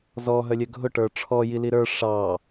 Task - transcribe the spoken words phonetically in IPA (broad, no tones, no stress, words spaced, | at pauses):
zɔ ɦœlʲœɡʱʊ ʈə˞ʈ͡ʂʰɔ jiliɾə˞ ʂɑ